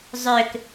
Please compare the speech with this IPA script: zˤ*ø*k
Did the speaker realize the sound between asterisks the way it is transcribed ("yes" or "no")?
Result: yes